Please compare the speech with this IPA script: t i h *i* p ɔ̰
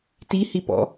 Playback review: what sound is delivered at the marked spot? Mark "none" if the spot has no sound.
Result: i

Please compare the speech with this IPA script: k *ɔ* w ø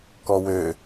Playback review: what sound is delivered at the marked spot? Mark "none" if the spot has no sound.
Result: ɔ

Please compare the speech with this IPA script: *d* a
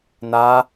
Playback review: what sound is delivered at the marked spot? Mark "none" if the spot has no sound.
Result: n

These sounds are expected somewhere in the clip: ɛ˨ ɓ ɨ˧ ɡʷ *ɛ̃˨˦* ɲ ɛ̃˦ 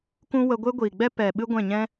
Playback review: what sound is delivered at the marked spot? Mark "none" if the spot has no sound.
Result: ɛ̃˦˨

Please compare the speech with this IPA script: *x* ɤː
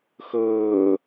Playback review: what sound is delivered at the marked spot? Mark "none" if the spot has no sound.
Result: x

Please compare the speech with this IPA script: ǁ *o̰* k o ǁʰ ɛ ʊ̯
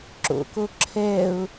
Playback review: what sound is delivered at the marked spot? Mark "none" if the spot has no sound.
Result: o̰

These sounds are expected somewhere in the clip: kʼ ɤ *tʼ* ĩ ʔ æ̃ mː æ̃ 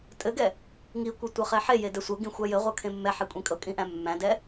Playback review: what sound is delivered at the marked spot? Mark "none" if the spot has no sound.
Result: kʼ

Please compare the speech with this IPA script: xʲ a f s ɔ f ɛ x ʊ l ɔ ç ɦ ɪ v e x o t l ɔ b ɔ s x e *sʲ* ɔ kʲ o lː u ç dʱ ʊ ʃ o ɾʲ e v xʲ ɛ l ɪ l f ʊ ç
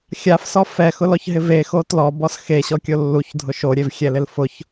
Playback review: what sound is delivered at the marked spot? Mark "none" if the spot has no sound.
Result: ɕ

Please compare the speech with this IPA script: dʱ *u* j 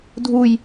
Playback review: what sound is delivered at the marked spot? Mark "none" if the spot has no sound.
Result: u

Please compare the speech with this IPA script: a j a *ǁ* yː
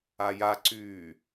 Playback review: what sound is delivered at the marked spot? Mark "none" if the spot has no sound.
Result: ǀ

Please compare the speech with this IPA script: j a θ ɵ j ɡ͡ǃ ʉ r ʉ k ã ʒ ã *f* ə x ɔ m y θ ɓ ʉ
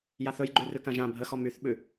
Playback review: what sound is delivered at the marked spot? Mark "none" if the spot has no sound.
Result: bʱ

